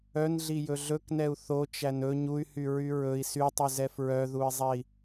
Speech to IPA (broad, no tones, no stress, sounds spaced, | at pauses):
œ n ɮ i j ɵ ɮ ɵ k n ɛ u̯ θ o t͡ʃ æ n ɵ ɲ u y̯ h y ɹ y ɹ ɵ i̯ s y tˤ y z ɛ f ɹ œ ð u i̯ zˤ ɛ i̯